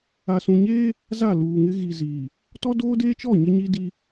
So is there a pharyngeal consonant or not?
no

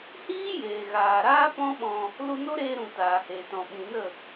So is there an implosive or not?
yes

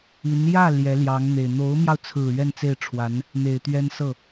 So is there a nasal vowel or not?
no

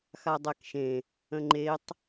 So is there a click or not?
yes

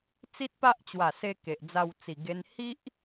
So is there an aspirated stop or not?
no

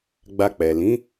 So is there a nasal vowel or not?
yes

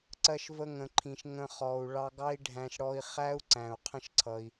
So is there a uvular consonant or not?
yes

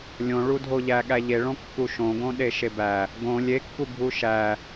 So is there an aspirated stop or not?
no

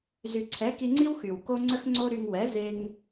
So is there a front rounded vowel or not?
yes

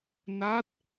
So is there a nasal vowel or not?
no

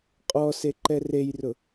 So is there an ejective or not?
yes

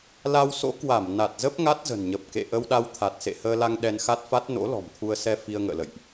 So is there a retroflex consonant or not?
no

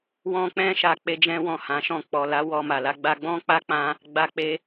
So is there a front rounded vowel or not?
no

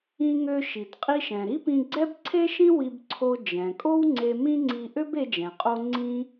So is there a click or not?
yes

